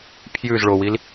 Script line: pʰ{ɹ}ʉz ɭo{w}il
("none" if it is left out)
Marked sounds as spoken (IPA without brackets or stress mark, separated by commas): j, w